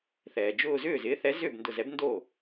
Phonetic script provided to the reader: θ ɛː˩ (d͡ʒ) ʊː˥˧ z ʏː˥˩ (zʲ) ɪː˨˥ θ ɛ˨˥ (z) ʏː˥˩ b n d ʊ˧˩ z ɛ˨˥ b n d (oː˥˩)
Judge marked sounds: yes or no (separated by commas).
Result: yes, no, yes, yes